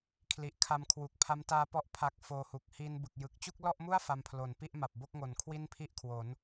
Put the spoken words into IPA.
kʰli˨˩ʔkʰa˧mkʰwu˨˩k̚ pʰa˦˥mtaː˧pɔ˦˥ʔ pʰa˦˥k̚foː˧hu˨˩k̚ hi˧n bɯ˨˩k̚jɯ˨˩k̚ t͡ɕu˥˩k̚lɔ˥˩ʔmu˥˩a̯ fa˧mpʰlo˩˦n pi˥˩ʔma˨˩p̚bo˥˩k̚ŋo˩˦n kʰwi˥˩npʰi˥˩ʔkʰwo˩˦n

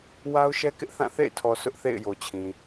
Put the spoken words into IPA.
wa˦ʊ̯ʃɛ˦kɪ˦ʔθã˦˨ θḛ˦˨ɪ̯tʰɔ˨ sʊ˦ʔθḛ˦˨ɪ̯ jo˨t͡ɕʰĩ˨

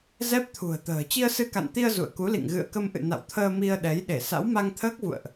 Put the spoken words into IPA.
zɛ˦˥p̚t̪ʰṳ˨˩ə̯t̪ə̤ː˨˩ t͡ɕi˧ə̯sɨ˧ka̰˧˨nt̪i˧ə̯ zṵ˧˨ə̯ku˨˦lḭ˧˨ŋ ɣɨ̰˧˨ə̯kə˧mʔɨ̰˧˨ na̰˧˨wt̪ʰəː˧ mi˧ə̯ɗɛ˨˦j ɗe˧˩sa̰˧˥w ma˧ŋt̪ʰəː˦˥k̚vṵ˧˨ə̯ʔ

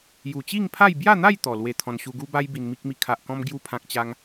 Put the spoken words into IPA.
ju˨˩t͡ɕi˥˧ŋpʰa˥˧j bja˥˧n̪a˥˧j t̪ɔ˨˩lwe˧t̪ʰɔ̃˧n ɕu˧ɡu˦ba˦j bi˧nmi˦k̚mi˦ kʰa˨ʔkɔ̃˧m ɡju˧pʰã˨k̚ t͡ɕa˦ŋ

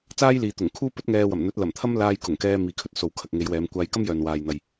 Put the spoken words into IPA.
t͡saː˥jliː˨t̪ʊ˨˩ŋ kʰuː˥pɵ˥t̚ŋɛː˧wɐ˨˩m n̪ɵ˨˥t̚lɐ˨˩mt̪ʰɐ˥m laː˧j kʊ˨˩ŋkɛː˧ miː˨kʰɵ˧t̚ so˨wkʰɐ˨k̚ŋe˨˧jwɛː˨˧m kʷaː˧jkɐ˥mjœː˨n waː˨jn̪ɐ˨j

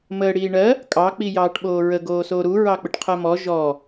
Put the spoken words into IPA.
məːɽiːɳɜ | kʼɑ k͡pijɑːʈɓoːɹə ɡoːsoɾu ɹɑk͡pəʈqʰɜmɔ ʒɔ

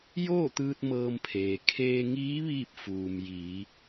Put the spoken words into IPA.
joː˥˨t̪ɯː˧t̚ mɤː˧mpʰeː˩ kʰeː˧ŋiː˧˥ ʋiː˥˨p̚fuː˩mjiː˩˧

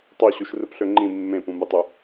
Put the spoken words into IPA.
tˤoɕuʃ rɯpɬøŋ͡ǃĩ mːẽpũmɯtˤu

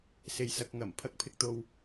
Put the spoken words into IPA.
se˨jsɐ˨k̚ŋɐ˨˩m pʰɐ˥k̚pʰɪ˧k̚t̪o˧w

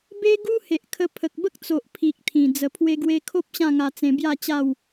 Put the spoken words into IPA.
be˦ɡu˦ he˨ʔkʰə˧pʰə˨k̚ bə˦k̚t͡so˨ʔ pʰi˨k̚t̪ʰĩ˨˩ d͡zə˨˩pʰwe˧ɡwe˧kʰo˦p̚ ɕã˥˧ŋa˧t͡sẽ˧ bja˥˧t͡ɕa˥˧w

